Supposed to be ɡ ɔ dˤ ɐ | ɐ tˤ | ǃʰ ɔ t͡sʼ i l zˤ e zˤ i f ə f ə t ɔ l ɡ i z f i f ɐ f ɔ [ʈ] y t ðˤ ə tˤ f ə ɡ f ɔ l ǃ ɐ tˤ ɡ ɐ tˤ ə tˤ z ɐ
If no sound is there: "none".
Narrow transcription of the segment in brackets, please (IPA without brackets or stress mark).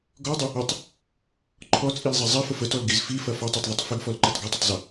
tˤ